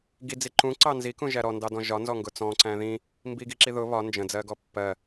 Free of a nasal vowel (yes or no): no